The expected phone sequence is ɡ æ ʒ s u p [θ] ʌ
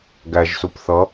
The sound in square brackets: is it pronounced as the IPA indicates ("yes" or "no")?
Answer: yes